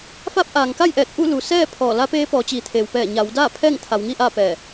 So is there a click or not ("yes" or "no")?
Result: no